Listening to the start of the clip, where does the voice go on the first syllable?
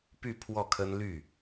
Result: falling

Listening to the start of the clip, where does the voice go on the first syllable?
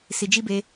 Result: low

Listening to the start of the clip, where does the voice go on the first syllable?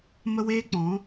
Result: high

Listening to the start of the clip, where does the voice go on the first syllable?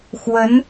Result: rising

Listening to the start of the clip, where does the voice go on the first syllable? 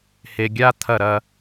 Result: low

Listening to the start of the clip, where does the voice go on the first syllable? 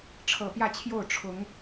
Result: low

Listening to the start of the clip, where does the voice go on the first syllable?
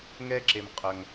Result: high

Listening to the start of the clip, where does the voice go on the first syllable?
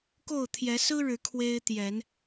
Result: falling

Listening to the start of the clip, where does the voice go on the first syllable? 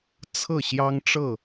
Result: falling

